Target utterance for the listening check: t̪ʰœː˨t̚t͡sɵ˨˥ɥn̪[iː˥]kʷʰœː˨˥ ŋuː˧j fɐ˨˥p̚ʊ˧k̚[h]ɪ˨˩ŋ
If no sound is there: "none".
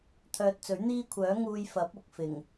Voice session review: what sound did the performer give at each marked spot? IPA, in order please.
iː˥, f

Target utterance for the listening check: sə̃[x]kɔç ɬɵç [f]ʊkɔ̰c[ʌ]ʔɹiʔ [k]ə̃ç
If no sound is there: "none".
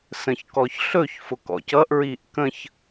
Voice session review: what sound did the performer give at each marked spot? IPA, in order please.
ç, f, ʌ, k

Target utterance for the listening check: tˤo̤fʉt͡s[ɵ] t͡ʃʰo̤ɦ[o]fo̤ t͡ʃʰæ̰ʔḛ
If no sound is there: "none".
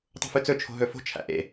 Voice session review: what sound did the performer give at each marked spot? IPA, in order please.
ɵ, ɵ

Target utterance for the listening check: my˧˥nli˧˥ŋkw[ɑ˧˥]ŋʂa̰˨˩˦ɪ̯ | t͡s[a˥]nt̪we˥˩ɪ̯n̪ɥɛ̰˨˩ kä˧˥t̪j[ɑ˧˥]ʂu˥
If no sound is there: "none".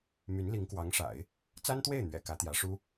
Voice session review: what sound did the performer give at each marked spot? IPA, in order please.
ɑ˧˥, a˥, ä˧˥

